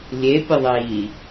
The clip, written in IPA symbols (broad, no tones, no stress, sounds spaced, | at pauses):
lʲ e pʲ ə ðˤ iː